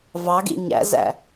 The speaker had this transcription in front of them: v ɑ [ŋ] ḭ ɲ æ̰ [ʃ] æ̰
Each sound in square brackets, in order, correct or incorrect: incorrect: ɡ, incorrect: z

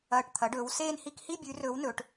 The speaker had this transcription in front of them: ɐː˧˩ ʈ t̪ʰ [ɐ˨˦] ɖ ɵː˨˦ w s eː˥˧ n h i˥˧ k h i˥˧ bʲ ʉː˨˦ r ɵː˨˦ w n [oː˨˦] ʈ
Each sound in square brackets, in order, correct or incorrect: correct, incorrect: ɵː˨˦

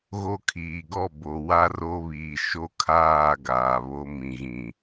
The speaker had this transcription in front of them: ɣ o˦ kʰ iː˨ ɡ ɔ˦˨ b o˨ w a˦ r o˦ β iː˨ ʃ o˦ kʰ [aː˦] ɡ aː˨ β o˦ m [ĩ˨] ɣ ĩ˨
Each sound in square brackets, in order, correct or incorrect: incorrect: aː˦˨, correct

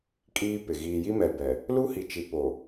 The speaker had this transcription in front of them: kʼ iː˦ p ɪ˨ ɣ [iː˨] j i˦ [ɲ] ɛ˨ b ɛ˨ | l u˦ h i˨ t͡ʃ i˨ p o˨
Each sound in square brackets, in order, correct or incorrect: correct, incorrect: m

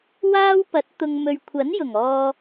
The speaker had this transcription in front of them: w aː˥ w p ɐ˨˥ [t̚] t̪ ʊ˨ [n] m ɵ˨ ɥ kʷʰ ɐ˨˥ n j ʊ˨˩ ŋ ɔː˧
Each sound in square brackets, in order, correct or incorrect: correct, incorrect: ŋ

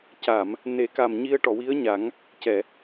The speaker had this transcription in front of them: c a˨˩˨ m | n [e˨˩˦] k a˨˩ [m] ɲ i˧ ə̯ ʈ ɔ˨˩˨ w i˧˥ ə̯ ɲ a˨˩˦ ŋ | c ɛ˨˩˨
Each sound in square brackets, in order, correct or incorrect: correct, correct

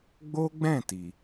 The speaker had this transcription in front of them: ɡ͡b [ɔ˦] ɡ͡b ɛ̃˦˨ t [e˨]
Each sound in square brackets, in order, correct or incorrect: incorrect: o˦, incorrect: i˨

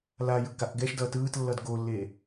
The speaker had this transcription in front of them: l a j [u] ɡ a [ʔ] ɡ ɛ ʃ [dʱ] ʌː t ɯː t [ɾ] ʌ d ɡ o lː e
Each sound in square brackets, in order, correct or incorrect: incorrect: ɯ, correct, incorrect: d, incorrect: lː

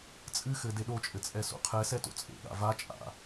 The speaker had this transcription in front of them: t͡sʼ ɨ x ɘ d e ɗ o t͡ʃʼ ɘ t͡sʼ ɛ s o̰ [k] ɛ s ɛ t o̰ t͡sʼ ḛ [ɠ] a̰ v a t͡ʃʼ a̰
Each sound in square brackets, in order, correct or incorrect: incorrect: qʰ, correct

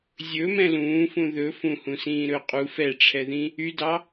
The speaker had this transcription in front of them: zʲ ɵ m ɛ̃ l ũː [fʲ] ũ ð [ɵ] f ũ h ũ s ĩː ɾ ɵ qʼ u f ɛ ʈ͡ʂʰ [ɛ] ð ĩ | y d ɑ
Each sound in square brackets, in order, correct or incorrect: incorrect: f, correct, correct

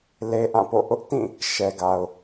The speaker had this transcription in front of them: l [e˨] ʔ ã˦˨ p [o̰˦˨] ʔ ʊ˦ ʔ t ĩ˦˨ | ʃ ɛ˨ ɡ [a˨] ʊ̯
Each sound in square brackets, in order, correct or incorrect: incorrect: e˦, correct, correct

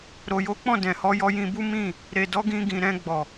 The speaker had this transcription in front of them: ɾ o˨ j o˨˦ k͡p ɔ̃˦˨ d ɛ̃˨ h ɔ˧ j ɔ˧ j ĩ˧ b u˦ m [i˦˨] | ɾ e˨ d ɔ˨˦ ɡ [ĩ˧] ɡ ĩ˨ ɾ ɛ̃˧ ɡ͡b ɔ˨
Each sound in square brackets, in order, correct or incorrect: incorrect: ĩ˦˨, correct

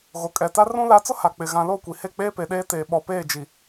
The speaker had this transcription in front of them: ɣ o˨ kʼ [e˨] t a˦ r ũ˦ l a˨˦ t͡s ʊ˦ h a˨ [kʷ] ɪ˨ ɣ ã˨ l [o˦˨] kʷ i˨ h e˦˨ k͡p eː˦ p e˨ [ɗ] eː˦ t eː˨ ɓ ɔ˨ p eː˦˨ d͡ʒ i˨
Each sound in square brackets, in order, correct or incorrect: incorrect: ɛ˨, incorrect: k͡p, correct, correct

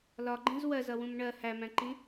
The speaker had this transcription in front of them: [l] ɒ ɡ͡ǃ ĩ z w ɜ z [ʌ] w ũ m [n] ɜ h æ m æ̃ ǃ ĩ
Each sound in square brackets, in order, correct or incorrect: correct, correct, incorrect: ɳ

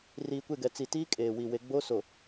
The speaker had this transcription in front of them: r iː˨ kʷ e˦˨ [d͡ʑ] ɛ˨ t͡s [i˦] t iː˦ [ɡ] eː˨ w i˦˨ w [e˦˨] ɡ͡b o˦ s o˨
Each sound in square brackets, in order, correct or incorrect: incorrect: ɡ, incorrect: i˨, incorrect: kʼ, incorrect: e˦

